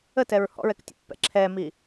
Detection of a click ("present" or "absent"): present